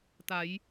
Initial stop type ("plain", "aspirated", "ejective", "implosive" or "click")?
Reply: plain